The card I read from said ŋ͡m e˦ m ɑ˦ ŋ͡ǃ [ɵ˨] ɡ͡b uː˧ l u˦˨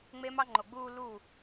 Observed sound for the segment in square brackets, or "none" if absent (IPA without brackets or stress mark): o˨